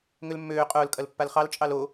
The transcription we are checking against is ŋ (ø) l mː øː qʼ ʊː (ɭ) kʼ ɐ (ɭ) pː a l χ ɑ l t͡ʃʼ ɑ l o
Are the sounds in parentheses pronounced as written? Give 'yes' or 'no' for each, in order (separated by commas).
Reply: yes, no, no